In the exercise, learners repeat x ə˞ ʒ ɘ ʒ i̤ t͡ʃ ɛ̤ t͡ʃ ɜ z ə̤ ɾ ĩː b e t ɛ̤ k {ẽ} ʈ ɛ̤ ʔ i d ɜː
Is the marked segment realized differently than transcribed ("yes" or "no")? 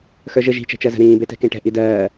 no